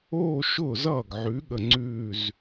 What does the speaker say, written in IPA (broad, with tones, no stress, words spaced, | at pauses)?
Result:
oː˥˧ʃʊː˥˩zʌː˥˩ɡʕʉ˨˥ ɠə˥˩ŋ͡ǀʉː˥˧z